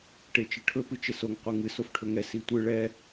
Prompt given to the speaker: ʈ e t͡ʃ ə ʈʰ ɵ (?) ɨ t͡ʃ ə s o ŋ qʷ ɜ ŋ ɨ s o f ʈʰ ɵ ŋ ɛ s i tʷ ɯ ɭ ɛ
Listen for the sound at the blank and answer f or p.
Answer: p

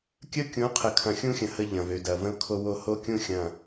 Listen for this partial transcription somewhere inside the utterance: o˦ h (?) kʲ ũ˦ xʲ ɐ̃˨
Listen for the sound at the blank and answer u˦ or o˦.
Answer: o˦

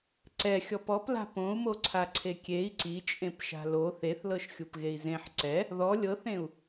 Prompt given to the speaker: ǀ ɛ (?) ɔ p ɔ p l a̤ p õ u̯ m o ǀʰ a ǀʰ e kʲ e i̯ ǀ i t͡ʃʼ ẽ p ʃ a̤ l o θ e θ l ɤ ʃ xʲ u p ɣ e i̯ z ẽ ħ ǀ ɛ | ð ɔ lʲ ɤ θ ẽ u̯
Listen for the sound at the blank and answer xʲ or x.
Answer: xʲ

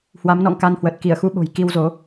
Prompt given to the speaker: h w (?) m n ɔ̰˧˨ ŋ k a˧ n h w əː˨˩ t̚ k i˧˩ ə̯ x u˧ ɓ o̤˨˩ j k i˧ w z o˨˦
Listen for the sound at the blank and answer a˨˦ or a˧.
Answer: a˨˦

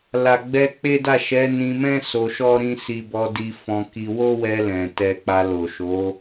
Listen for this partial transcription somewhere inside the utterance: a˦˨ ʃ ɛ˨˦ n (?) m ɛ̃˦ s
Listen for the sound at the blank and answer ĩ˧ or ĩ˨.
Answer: ĩ˧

